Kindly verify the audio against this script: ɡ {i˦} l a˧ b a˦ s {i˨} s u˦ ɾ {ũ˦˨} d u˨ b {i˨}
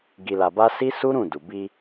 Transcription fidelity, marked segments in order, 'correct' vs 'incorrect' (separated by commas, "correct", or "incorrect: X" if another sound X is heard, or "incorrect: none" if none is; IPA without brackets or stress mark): incorrect: i˧, incorrect: i˦, correct, incorrect: i˧